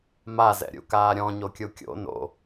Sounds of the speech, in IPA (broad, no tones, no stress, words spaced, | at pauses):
mazɛ̰ɾʲṵkaː ɾʲɔ̃ɲokʲu kʲo̰ no̰